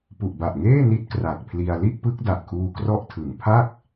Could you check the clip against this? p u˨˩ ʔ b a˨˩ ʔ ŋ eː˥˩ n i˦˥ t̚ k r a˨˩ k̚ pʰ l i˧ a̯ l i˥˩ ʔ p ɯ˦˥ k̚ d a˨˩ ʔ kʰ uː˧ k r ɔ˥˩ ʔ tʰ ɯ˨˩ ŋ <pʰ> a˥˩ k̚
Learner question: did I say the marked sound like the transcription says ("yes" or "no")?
yes